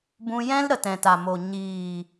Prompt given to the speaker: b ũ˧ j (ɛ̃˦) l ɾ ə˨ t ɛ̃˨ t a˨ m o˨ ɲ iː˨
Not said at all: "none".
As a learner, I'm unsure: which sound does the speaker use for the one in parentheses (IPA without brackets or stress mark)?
ɛ̃˦